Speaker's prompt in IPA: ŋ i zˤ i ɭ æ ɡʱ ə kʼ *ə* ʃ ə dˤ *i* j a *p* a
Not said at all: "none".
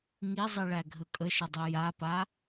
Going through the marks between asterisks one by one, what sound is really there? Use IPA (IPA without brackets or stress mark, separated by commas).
ə, i, p